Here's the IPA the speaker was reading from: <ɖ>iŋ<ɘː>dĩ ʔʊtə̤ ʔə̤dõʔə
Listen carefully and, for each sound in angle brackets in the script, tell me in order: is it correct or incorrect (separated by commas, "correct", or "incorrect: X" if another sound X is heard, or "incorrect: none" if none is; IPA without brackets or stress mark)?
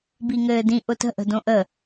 incorrect: b, correct